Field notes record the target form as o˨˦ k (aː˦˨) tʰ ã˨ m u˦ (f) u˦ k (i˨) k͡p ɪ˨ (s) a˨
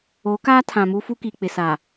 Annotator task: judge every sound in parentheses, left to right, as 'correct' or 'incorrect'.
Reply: incorrect: aː˦, correct, correct, correct

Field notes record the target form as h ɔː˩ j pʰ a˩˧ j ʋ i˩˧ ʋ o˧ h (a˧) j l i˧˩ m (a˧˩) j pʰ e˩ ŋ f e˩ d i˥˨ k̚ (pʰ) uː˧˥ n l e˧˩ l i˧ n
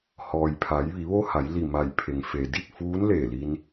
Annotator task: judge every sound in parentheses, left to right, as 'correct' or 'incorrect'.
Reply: incorrect: a˩˧, correct, incorrect: f

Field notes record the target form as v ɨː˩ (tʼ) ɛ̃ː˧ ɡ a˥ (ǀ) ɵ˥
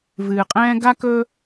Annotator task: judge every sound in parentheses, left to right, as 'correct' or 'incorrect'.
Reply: incorrect: qʼ, incorrect: k

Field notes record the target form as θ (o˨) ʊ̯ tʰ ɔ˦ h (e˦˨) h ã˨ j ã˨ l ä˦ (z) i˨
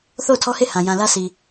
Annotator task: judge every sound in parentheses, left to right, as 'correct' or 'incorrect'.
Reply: incorrect: o˦˨, correct, incorrect: s

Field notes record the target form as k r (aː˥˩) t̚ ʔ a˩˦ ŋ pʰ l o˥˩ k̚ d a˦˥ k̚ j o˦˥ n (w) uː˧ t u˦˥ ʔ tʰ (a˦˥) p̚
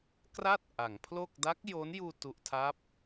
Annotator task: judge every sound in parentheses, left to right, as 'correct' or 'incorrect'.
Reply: incorrect: a˥˩, incorrect: j, correct

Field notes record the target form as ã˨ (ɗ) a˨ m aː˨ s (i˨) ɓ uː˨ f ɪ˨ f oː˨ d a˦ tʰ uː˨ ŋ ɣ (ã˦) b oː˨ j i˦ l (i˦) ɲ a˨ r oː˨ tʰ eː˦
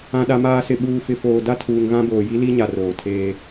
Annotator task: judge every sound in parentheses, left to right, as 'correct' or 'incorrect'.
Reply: correct, incorrect: ɪ˨, correct, correct

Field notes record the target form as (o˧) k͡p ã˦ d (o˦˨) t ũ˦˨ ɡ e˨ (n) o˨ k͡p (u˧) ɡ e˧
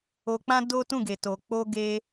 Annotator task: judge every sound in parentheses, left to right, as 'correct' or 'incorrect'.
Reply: correct, incorrect: o˦, incorrect: t, incorrect: o˧

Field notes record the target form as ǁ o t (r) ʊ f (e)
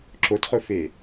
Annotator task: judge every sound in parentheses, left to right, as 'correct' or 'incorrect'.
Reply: incorrect: χ, correct

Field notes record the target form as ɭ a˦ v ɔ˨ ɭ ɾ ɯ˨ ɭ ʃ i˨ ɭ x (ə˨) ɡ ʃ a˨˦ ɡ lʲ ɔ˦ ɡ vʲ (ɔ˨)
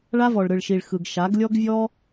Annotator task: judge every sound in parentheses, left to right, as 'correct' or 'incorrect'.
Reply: incorrect: ɯ˨, incorrect: ɔ˦

